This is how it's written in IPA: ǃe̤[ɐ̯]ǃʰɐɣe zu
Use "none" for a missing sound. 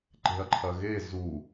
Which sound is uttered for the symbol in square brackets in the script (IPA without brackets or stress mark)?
ɐ̯